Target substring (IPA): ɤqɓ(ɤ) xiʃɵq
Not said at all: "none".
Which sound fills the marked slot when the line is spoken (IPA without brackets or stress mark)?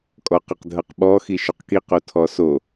ɔ